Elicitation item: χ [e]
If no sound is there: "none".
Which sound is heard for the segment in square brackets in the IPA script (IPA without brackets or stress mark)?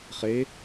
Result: e